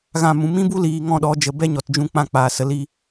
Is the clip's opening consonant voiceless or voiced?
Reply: voiced